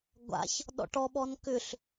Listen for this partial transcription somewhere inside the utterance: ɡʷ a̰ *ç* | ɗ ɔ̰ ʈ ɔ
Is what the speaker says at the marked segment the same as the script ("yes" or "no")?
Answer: yes